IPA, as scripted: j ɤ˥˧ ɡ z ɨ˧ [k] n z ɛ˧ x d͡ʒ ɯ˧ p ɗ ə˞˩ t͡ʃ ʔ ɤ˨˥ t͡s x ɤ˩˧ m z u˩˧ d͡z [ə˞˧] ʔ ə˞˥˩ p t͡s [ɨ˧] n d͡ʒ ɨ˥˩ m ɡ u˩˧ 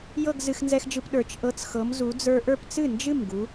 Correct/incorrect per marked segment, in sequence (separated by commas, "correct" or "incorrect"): incorrect, correct, incorrect